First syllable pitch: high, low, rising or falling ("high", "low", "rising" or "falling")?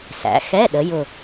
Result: rising